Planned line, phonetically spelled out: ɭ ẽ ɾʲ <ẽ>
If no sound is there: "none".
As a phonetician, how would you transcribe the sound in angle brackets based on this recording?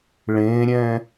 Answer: ɛ̃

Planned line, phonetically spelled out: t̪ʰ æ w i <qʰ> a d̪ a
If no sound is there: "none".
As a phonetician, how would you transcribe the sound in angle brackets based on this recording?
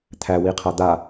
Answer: qʰ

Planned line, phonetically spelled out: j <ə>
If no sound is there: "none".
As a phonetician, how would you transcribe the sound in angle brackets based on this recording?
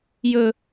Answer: ɵ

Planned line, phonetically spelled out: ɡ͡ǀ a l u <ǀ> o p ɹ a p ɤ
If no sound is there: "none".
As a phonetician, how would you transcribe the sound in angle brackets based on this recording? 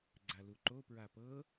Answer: ǃ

